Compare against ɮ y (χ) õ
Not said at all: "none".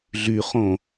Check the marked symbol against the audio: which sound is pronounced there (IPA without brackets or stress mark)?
χ